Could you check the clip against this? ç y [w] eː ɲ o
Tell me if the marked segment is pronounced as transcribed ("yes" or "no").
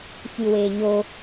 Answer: yes